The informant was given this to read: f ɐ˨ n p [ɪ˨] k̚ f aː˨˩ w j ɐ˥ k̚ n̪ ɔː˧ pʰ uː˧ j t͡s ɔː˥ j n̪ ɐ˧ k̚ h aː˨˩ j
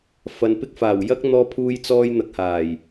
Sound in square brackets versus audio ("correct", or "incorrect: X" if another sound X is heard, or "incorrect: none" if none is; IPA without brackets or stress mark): incorrect: ɪ˥